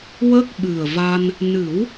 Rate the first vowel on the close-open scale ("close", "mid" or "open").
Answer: mid